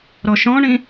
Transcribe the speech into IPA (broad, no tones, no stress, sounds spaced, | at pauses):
ɾ ɔ ʃ ɔ̃ ɳ ĩ